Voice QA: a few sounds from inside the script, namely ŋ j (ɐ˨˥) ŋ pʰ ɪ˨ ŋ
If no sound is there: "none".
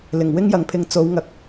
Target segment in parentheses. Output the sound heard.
ɐ˨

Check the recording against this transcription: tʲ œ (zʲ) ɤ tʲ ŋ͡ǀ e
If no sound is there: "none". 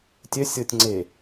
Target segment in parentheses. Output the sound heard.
sʲ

